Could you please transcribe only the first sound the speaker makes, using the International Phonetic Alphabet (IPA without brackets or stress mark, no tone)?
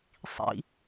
sˤ